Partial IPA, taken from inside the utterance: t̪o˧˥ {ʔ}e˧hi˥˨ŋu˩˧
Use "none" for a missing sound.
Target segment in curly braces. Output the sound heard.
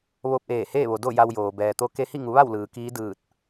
k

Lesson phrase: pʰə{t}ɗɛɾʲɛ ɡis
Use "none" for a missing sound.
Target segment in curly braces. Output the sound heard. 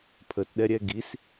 t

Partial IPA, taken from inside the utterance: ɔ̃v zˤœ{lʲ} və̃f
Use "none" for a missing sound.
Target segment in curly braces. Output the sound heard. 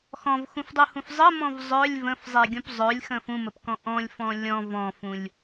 lʲ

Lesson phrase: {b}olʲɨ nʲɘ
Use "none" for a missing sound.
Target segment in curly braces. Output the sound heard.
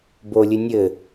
b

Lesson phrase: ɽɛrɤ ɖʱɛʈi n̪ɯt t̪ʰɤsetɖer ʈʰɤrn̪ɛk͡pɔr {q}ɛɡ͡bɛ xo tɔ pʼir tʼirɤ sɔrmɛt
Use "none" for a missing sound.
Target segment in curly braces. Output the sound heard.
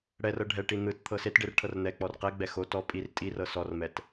q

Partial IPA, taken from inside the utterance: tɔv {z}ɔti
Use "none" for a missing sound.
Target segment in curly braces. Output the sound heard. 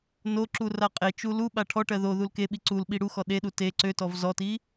z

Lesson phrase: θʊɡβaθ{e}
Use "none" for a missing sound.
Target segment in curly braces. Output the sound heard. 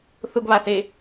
e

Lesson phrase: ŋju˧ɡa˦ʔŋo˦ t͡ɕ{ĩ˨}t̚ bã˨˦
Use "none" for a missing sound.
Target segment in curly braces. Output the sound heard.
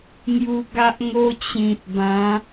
ĩ˨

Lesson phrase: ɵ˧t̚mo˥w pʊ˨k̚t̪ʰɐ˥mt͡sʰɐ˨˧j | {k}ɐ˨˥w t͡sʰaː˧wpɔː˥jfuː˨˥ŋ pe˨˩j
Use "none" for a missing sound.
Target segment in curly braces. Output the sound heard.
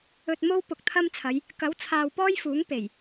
k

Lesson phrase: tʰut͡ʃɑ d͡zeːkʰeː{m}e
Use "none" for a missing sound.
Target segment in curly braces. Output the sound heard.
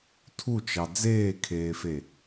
f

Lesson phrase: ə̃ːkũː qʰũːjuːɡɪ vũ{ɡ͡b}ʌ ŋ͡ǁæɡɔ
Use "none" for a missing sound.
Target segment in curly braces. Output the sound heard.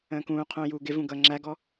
ɡ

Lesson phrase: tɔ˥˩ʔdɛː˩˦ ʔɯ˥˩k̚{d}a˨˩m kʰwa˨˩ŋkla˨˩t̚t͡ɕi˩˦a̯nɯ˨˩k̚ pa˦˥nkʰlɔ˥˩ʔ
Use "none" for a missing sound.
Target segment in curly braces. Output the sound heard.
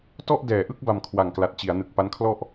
b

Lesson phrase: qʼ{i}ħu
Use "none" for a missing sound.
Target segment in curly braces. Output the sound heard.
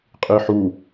i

